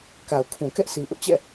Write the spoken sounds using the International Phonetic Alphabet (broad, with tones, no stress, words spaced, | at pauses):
ka˨ʊ̯kʰũ˨ kɛ˦ʔsʰi˨ʔʊ˦ʔt͡ɕɛ̰˦˨